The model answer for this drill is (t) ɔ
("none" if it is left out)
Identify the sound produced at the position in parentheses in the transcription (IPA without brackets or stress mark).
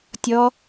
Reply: tʲ